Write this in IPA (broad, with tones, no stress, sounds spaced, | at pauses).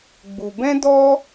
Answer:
ɡ͡b u˨ b ɛ̃˦ d ɔ˦